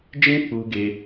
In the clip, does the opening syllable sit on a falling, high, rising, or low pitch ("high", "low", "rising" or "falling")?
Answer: high